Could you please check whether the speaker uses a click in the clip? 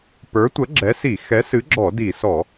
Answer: yes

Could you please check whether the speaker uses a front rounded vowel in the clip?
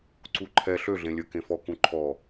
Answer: yes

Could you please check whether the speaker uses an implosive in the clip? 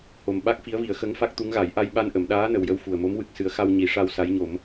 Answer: yes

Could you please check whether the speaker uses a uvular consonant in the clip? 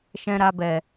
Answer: no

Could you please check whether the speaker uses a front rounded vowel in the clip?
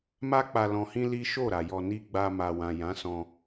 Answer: no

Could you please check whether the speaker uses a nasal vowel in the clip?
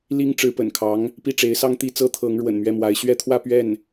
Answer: no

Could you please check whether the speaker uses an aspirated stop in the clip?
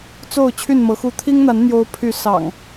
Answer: yes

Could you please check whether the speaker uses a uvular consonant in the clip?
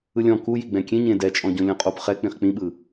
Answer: yes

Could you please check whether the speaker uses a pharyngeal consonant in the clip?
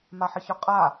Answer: yes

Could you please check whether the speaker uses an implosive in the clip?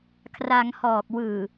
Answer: no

